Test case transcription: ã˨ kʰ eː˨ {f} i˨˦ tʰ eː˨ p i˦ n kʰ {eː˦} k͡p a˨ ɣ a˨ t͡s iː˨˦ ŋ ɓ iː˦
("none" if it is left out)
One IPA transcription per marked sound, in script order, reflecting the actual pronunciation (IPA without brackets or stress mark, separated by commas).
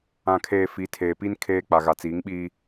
f, eː˦